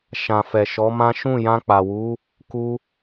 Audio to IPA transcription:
ʃã˨fɛ˨ ʃɔ˨˦mã˦ ʃũ˦˨jã˧k͡pa˨wu˨˦ | ku˧

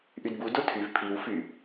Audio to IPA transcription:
ʔydbu dotʰyv pʰiw fy

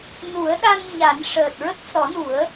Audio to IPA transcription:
nu˨˩˦ə̯ɗa˧n ɲa˨˩˦n ʂəː˨˩t̚ɹə˦˥k̚sɔ˨˩˦nu˨˩˦ə̯

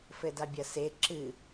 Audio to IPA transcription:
fɘdabʲɐse ǁɨ

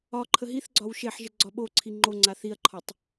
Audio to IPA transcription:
ɒ ǃʰəɦiθɡ͡ǀɒw ʃeħʒə ɡ͡ǀɒɓoǀʰi ŋ͡ǃoŋ͡ǀa θiɐ̯ǃʰɒtˤ

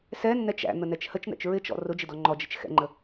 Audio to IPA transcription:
sɛnːɛt͡ʃ æ̰n̪ənɛt͡ʃ hət͡ʃn̪ɛ̰t͡ʃ ɹɪt͡ʃɔ̰ rʊd͡ʒɪdɔ ŋ͡ǃɔd͡ʒɪt͡ʃ xɛ̰ŋ͡ǃə

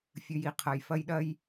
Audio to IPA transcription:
fʲɨ˩˧˩ji˩˧˩qʰɐ˩˧˩j fɐ˦jɗɐ˦j

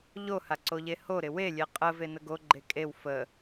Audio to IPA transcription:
ʎoha ǀoʎehoɾɪ welʲe qʼə venəɡoɡ͡ǃe kʼew fə

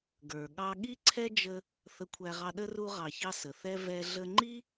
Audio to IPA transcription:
ɡə˞˨ ɠɑ˧ɠi˦ǀʰɛ˦ d͡ʒə˧ | θə˧kʷʰæ˧ʁɑ˧ɗə˦ ru˧ʁɑ˨çɑ˧ sə˨θɛ˦ vɛ˦ ɮə˧ŋ͡ǃi˦

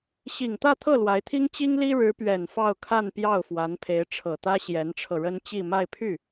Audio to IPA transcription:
ɕi˨˩ŋt̪ä˥˧t̪ʰɤ˥˩ lwa˧˥ɪ̯t̪ʰi˥ŋ t͡ɕi˥ŋli˥ ɻɻ̩˧˥pɥɛ˨˩n fɑ˥˧ʊ̯kʰa˥˧npjɑ˥˩ʊ̯ fwa˧˥npʰe˧˥ɪ̯ʈ͡ʂʰɤ˨˩t̪ä˥ ɕjɛ˧˥nʈ͡ʂʰɤ˧ɻə˥n t͡ɕi˥˧ma˥˧ɪ̯pʰy˥˩

